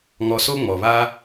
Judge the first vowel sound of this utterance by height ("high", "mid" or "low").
mid